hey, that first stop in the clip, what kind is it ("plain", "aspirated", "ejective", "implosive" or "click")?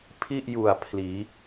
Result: aspirated